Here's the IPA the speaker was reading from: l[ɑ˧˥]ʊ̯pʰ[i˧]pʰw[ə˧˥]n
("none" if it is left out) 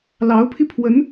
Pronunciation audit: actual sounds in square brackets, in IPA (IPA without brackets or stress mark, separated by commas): ɑ˧˥, i˧, ə˧˥